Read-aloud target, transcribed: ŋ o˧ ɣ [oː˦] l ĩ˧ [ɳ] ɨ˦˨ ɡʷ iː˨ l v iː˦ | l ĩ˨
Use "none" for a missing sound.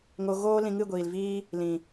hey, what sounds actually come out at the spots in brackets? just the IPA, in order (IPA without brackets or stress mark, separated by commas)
oː˦, ŋ